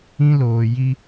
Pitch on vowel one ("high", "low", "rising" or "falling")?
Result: high